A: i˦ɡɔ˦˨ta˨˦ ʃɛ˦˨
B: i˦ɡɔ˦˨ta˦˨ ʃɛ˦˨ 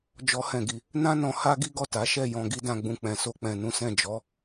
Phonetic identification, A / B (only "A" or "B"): A